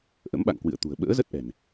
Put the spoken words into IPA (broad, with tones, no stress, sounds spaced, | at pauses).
ʔ ə̰˧˥ m ɓ a̰˧˨ ŋ k w ɨ̰˧˨ ə̯ t̪ ṳ˨˩ ə̯ ɓ ə̰ː˧˥ z ə˦˥ t̚ ʔ ɛ̤˨˩ n